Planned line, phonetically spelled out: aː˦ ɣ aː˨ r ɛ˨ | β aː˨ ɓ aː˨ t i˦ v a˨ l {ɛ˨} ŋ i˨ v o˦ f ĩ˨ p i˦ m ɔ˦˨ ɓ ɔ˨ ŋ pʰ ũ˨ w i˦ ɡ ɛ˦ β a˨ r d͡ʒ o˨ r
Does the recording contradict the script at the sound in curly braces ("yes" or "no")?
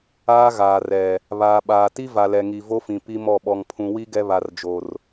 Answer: no